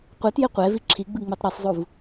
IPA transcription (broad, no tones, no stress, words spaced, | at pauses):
qʷɛtje qʷɛvi ǁʰiɡ͡bɯŋ͡metˤ ɾɛsˤzˤuv